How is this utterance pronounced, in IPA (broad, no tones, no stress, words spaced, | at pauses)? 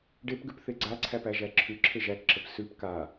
ɖepɡʉp θeɡ͡ǀaǀʰæp æʒæǁʰʉǁʰe ʒækǁəp sʉp ka